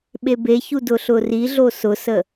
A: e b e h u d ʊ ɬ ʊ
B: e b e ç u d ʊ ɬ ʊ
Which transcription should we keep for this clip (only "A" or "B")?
B